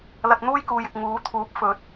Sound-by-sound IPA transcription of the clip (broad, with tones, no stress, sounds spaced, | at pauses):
l ɐ˧ t̚ n̪ uː˥ j k uː˨ j ɪ˨ k̚ ŋ uː˨˥ t̪ʰ uː˨˥ p̚ f ɵ˨˥ t̚